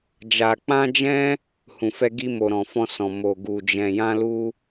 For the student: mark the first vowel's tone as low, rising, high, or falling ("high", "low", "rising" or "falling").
low